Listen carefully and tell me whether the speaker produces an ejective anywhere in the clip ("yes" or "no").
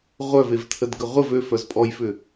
yes